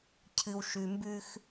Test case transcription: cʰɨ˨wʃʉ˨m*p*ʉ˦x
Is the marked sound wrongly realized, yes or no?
yes